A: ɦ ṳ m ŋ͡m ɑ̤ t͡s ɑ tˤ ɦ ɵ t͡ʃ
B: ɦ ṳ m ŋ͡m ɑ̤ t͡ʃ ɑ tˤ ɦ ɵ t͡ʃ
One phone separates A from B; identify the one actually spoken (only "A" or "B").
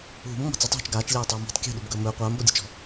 A